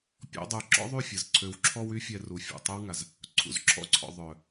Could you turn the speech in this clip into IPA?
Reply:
pʲɔ̰˦dˤu˧ ǁɔ̰˦ðˤy˦˨fʲə˨z ǀʰø˧wǁʰɔ˦wy˦ fʲɛ˦ru˧fʲṵ˦˨ tˤø˦wŋa˨z | ǀʰṵ˨zǁʰɔ̰˦ǀʰɔ̰˨ ðˤœ˨

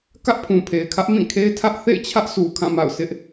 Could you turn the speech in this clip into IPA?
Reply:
kä˦ʔpʰũ˨pʰe˨ɪ̯kʰä˦ʔ mĩ˦˨kʰe˦ɪ̯tʰä˦ʔ θḛ˦˨ɪ̯t͡ɕʰä˦ʔ sʰu˨kʰã˦˨ma̰˦˨ʊ̯sʰɪ˦ʔ

